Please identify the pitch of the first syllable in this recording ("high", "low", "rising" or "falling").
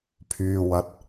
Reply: low